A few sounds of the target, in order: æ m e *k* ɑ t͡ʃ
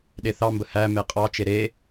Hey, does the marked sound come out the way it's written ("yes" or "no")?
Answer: no